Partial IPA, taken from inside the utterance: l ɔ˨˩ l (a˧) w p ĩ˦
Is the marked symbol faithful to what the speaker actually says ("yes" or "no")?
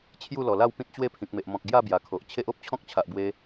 no